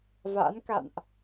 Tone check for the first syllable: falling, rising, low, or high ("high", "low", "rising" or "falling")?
rising